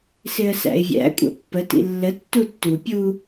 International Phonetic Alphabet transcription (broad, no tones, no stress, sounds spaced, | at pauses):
s ɪ ə̯ s æ̰ ɪ̯ vʲ æ̰ kʷʼ æ̰ pː ə t ḭ lː ə tː u tː u pʲ u